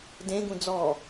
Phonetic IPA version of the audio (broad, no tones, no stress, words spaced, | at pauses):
dẽɡũ d͡zɔ